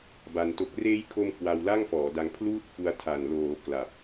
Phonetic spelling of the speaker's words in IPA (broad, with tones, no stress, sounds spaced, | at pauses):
b a˧ n t o˦˥ k̚ r eː˦˥ j kʰ o˧ m k w a˧ w l a˥˩ ŋ f ɔː˩˦ d a˧ ŋ pʰ l uː˥˩ t̚ f u˧ a̯ tʰ a˨˩ n l oː˩˦ k l a˨˩ p̚